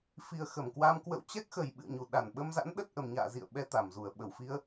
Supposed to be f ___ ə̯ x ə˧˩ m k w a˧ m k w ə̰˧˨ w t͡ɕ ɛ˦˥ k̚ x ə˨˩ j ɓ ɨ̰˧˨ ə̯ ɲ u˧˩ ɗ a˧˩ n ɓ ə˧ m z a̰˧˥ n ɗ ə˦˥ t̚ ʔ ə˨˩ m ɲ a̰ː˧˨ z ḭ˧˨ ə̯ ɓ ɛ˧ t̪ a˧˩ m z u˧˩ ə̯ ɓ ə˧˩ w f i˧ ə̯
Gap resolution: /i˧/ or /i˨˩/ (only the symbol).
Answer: i˨˩